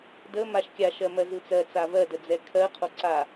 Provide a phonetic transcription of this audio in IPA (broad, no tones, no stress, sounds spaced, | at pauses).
d ə m a ʃ kʲ a ʃ ɜ m ɜ z ɯ t͡s ɜ t͡s a v ɜ d ə d͡z ɛ kʰ ɜ qʰ o ǀ a